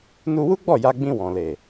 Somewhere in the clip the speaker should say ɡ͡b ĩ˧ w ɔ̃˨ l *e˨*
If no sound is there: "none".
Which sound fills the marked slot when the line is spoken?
e˨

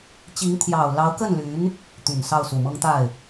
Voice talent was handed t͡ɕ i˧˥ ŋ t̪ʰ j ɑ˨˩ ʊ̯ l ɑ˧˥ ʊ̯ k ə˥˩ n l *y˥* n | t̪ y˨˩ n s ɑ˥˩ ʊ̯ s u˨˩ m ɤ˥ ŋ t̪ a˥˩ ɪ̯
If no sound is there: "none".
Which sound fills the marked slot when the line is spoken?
y˧˥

